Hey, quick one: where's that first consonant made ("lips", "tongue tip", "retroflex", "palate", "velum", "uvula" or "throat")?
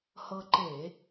throat